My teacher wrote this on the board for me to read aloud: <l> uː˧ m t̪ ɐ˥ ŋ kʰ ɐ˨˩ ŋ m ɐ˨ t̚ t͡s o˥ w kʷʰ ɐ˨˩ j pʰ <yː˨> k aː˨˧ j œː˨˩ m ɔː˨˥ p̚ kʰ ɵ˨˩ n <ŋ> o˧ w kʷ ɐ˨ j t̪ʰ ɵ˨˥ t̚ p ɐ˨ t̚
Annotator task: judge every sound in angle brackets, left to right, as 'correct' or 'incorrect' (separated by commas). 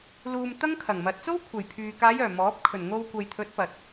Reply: correct, correct, correct